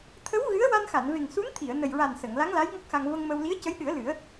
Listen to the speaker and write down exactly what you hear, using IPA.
t̪ʰə˧˥w ɣɨ˧˥ə̯ wa˧nxa˨˩˨nve˨˩ŋ su˧˥nt̪ʰi˨˩˨ə̯ nə˨˩jɹa˨˩n sə˨˩˨ŋ la˧˥ŋla˧˥j ŋɔ˦˥k̚xa˧ŋ və˧ŋmə˧w li˧˥ə̯cə˧˥jɗɨ˨˩˦ə̯ lɨ˨˩˦ə̯

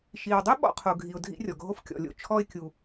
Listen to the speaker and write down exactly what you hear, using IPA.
ʃi˩wdˤo˥ ɓɔ̰˧qʰo˩ɡʱi˩ʊ̯ dʱḭ˧rʲɔ˩ɡʱo˧f kʲɔ̰˩lʲo̰˧ t͡ʃʰɔ˧ɪ̯kʲu˩

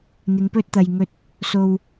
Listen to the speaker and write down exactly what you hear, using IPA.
n̪ɪ˨˧ŋpɵ˥t̚t̪ɐ˨jŋɵ˧t̚ | so˨w

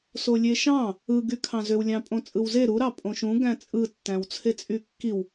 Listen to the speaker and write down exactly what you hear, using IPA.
solʲeʃɑ̃ | ɯ ɡykʰɑ̃zøw lʲɑ̃pʼõt͡sʼɯwze ɾu ɾɑpʼõʃũ ɡæ̃t͡sʼɯ tːæ̃wt͡sʰet͡sʼykːiw

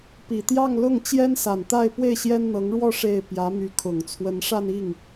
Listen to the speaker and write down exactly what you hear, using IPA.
pi˨˩t̪jɑ˥˧ŋlʊ˥˩ŋ t͡ɕjɛ˥nsa˨˩nt̪a˥˧ɪ̯ pwe˥˩ɪ̯ɕjɛ˥nn̪ɤ˧˥ŋɻwɔ˥˧ ʂe˥˩ɪ̯ pjä˧˥my˧˥kʰʊ˨˩ŋ t͡sʰwə˧˥nʂa˥˧ni˥˩ŋ

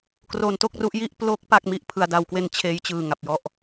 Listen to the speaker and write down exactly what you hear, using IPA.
kro˧nto˥˩k̚ru˦˥ʔji˥˩ʔ plo˦˥k̚ pa˥˩k̚ mi˥˩ʔpʰɯ˩˦a̯da˩˦wkwe˧n t͡ɕʰeː˦˥jt͡ɕɯː˨˩ŋa˨˩p̚jɔ˥˩ʔ

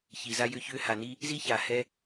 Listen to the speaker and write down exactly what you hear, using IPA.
çi˩za˧jʏ˧ çʏ˧ha˩ni˧ | zi˥ça˩hɛ˧

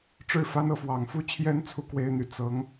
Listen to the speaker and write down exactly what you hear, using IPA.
ʈ͡ʂɻ̩˥˩fa˥n ɤ˥˩fwɑ˨˩ŋfu˥t͡ɕʰjɛ˥n t͡sʰu˥˩kwe˥ɪ̯n̪y˨˩ t͡sɤ˧˥ŋ

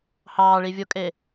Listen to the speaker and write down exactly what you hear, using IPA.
hɑːɭivʲokʼe

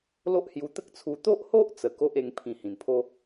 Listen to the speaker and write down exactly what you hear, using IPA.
lo˦ʔhju˧t̪ə˦k̚t͡sʰu˧ t̪o˦ʔho˦ʔ t͡sə˨˩ko˦ʔ e˧ŋpʰĩ˨˩ hĩ˨˩npʰo˦

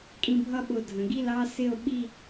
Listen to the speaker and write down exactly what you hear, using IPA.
kʼĩ˧bʱʌ˥ɓʊ˧˩dʱə̃˩˧ ɡi˥˧lɑ˥sɪ˥˧o̯ɓi˥˧

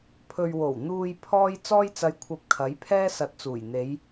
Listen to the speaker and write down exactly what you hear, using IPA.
pʰɵ˨ɥwo˨˩w n̪uː˨j pʰɔː˥j t͡sɔː˥jt͡sɐ˧j kʷʰɐ˧p̚kʰɐ˨˥jpʰɛː˥ sɐ˨t̚t͡suː˨˩jn̪e˨˧j

